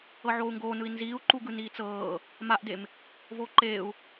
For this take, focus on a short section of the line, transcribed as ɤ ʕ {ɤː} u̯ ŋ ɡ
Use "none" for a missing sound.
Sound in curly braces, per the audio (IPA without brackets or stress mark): oː